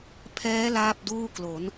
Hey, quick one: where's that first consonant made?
lips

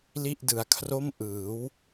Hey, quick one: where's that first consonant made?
tongue tip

